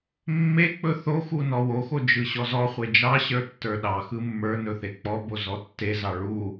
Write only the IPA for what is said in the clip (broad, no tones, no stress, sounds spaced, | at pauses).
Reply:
mː e k͡p ɵ θ o x u n ɔ w o x o d͡ʒ ɯ ɕ ɔ z ɔ χʷ e d͡ʒ ɑ ɕ ə˞ tː ə˞ ɗ ɑ x ɯ mː ə˞ n ɵ θ e k͡p ɔ b o z ɔ tː e z ɑ ɭ u